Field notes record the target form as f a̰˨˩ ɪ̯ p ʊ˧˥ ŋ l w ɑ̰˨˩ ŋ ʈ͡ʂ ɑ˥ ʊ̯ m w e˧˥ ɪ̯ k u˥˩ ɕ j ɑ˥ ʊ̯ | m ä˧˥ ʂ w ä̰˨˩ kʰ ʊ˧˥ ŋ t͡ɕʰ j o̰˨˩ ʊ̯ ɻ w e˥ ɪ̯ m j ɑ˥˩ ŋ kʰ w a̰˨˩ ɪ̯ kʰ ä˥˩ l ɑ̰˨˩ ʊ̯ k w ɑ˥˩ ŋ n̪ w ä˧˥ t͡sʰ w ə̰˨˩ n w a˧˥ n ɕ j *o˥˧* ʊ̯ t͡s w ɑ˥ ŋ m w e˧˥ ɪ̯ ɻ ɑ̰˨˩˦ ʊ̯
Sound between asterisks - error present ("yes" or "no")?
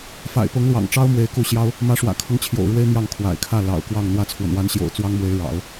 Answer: yes